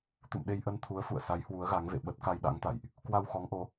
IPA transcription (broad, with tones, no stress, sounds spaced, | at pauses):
t̪ ṵ˧˨ m ɗ e˧ j ʔ ə˧ n t̪ʰ u˨˦ ə̯ f ṵ˧˨ ə̯ s a˨˦ j h w u˨˦ ə̯ ɣ a˨˦ ŋ v ḛ˧˨ ɓ ə˦˥ t̚ k a˧ j ɗ a̰˧˥ ŋ t̪ a̰˧˨ j ʔ | k w a˧ w x ɔ˨˦ ŋ ʔ o˨˦